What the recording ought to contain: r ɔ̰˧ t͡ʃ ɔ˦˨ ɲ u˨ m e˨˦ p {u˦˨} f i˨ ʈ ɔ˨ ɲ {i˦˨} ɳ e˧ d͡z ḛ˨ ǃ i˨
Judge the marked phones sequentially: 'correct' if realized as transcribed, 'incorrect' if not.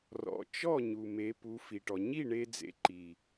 incorrect: u˨˦, correct

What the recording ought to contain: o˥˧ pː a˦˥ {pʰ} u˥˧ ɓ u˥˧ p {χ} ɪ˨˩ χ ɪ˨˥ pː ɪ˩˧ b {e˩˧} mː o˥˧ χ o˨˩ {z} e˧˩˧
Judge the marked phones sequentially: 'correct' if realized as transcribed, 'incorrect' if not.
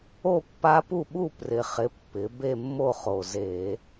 incorrect: p, incorrect: r, incorrect: e˥˧, correct

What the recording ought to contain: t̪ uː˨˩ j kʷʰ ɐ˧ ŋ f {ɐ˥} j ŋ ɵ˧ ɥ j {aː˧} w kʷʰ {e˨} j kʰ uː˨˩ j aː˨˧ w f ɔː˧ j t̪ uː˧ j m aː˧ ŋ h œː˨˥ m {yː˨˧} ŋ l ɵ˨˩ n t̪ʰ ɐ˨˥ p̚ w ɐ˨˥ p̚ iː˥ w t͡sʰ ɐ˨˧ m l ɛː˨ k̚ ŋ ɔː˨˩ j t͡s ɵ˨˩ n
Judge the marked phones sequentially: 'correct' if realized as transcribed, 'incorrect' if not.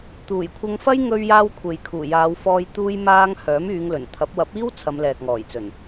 correct, correct, correct, correct

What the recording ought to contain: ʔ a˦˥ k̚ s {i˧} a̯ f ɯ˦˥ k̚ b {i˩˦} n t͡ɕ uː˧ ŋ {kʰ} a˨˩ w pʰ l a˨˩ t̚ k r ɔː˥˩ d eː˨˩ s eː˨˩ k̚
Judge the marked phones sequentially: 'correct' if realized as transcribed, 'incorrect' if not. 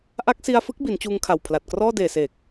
correct, correct, correct

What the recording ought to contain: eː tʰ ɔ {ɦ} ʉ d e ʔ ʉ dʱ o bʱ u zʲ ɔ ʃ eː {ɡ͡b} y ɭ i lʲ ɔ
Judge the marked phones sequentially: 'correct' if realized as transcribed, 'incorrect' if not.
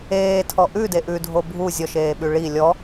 incorrect: ʔ, incorrect: ɓ

